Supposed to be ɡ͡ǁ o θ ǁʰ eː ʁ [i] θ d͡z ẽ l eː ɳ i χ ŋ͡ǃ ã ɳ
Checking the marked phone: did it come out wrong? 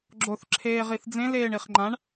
no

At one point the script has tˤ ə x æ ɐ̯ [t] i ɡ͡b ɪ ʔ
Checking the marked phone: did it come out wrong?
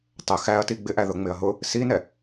no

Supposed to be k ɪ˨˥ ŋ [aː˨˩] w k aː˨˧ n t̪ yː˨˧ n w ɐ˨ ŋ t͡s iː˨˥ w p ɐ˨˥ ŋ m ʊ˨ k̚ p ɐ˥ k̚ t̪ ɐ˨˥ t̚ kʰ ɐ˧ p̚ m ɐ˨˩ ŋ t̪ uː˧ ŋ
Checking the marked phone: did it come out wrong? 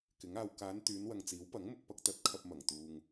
yes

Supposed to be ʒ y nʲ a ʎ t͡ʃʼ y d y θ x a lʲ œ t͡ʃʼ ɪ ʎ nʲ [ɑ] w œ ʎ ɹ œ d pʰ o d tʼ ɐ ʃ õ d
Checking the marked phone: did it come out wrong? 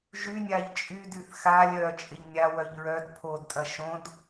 yes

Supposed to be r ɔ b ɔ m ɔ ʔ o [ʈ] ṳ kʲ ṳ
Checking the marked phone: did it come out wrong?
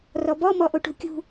no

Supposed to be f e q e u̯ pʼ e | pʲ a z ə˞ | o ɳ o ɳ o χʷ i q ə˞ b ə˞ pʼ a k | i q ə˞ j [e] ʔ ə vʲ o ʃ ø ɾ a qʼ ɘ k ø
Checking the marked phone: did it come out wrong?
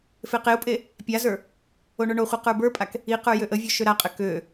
yes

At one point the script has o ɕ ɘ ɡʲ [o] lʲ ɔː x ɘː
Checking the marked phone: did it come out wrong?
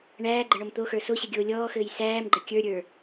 yes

